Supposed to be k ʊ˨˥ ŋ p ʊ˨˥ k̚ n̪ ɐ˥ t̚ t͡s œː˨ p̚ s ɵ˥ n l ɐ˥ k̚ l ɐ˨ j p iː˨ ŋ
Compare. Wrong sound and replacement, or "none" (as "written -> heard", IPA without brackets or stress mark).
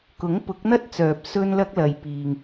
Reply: none